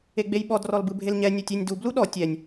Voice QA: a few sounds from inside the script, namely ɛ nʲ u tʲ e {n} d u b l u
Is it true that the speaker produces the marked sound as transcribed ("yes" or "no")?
no